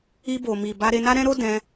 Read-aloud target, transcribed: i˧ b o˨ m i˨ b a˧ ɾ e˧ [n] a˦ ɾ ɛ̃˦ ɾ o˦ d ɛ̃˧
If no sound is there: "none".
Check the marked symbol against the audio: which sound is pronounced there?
n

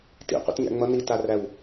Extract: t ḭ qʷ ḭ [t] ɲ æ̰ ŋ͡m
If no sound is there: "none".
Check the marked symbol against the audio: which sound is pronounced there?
t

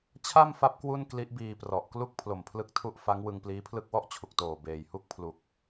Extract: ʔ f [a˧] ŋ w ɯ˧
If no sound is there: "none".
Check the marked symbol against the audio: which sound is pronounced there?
a˦˥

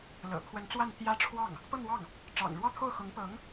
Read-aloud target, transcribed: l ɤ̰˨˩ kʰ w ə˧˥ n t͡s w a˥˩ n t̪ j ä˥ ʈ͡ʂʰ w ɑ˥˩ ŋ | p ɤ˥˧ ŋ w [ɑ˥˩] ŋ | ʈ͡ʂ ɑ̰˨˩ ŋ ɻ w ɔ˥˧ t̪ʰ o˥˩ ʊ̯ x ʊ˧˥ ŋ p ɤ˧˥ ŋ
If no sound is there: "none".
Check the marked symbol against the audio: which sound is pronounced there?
ɑ˥˩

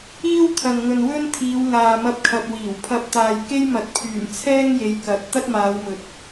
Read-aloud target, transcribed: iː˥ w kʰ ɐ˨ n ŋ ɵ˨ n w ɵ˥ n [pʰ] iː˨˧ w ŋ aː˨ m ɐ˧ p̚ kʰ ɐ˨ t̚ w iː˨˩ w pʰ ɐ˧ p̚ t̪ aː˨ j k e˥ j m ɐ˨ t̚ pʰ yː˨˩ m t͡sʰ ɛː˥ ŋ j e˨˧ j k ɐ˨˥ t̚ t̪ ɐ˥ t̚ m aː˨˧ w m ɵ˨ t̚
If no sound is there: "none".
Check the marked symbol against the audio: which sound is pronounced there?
t̪ʰ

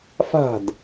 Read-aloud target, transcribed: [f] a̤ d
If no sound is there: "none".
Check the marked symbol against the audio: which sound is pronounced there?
f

